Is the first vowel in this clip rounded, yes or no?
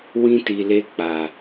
no